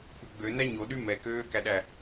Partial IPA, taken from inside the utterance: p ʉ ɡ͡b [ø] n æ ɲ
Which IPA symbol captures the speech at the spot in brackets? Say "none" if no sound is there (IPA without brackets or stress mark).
ø